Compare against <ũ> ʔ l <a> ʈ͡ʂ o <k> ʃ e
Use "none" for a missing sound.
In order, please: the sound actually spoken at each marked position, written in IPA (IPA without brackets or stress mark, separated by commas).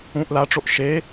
ũ, a, ʔ